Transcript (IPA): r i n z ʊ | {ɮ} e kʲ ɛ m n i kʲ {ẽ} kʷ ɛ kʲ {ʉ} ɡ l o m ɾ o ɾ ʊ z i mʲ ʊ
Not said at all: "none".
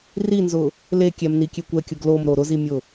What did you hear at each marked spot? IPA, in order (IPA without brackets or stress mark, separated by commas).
l, e, ʊ